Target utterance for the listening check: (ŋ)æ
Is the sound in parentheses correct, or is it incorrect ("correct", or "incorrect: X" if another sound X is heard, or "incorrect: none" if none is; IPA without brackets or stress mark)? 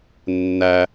incorrect: nː